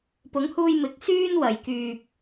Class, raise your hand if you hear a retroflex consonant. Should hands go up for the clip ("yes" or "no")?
no